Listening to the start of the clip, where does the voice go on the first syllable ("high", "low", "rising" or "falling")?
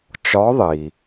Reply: rising